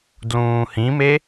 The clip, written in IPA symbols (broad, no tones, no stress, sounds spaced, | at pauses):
d l ũː h ĩ m e